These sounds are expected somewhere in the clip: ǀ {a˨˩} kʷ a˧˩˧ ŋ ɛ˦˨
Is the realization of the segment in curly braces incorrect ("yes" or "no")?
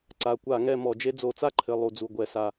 no